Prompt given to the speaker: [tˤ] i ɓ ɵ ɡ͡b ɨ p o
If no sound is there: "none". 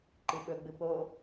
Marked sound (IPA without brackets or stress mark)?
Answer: ǃ